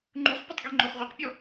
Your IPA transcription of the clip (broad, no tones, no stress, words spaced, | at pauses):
ŋ͡ǃuχpʲatˤ ɡeŋ͡ǃoχʁʷeqpʲɔ